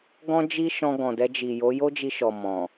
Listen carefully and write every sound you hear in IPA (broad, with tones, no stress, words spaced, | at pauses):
ɡɔ̃˦d͡ʒi˦ʃɔ̃˧ ɡɔ̃˨dɛ˧d͡ʒi˨jo˨˦ jo˦d͡ʒi˧ʃɔ˨ mɔ̃˨